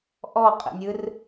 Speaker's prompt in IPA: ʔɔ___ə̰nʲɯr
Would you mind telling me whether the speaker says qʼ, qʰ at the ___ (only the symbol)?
qʼ